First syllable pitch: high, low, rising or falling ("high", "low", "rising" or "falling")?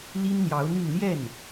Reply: high